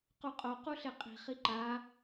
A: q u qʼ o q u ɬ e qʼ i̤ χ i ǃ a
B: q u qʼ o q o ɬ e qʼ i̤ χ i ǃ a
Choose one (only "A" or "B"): A